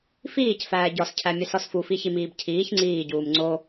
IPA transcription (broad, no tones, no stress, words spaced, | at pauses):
fiːcfæː ɟɒscʰæmʲesɒs fufiçimiːb cʰiːç ŋ͡ǀiːɟuːm ŋ͡ǀo